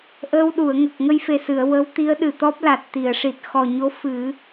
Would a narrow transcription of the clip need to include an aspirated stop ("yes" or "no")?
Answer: no